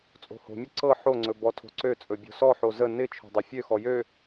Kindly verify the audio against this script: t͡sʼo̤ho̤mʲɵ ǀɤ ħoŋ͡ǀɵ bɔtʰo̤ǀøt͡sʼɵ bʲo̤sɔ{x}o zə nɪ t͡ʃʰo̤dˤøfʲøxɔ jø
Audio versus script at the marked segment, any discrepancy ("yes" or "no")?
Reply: yes